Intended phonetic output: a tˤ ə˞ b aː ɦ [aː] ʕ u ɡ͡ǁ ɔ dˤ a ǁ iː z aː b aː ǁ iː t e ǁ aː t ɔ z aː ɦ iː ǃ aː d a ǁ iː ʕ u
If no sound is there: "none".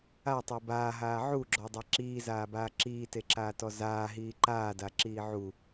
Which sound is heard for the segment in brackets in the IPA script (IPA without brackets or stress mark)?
aː